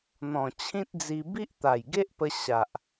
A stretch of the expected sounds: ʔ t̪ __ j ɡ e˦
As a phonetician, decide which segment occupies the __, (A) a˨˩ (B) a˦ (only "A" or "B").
A